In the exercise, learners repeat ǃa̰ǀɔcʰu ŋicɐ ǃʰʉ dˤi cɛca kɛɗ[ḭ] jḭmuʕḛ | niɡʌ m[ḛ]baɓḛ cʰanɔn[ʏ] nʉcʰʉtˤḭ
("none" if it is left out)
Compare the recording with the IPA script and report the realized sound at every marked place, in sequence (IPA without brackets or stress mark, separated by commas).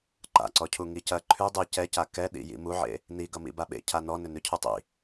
ḭ, ḭ, ʏ